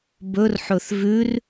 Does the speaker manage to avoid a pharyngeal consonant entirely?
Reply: no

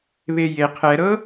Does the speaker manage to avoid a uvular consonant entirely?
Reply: no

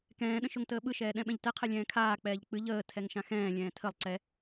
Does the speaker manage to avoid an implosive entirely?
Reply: no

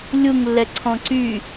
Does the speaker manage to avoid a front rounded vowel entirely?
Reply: no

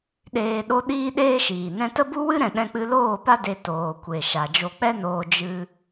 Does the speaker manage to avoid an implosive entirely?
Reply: no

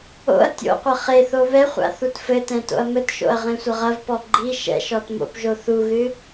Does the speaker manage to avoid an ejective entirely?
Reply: yes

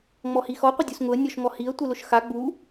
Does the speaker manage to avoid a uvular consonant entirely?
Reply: no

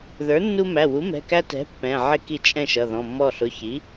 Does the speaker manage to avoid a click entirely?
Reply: yes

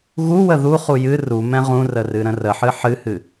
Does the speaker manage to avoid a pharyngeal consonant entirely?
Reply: no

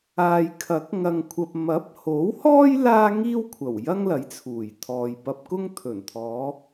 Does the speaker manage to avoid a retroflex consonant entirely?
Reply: yes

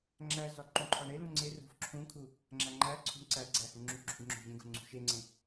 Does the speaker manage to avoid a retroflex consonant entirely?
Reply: no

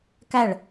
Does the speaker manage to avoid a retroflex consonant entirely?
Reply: no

